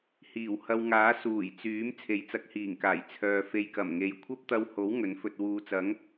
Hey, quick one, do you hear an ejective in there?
no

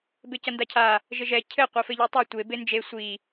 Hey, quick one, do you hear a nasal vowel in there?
no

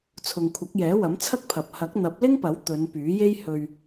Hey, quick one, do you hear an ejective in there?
no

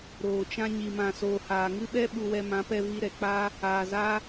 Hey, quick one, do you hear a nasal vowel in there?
yes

